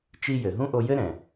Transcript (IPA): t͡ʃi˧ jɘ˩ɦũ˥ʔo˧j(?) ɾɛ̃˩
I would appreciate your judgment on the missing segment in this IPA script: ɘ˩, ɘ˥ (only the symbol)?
ɘ˥